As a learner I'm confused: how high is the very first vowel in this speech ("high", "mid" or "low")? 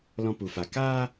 mid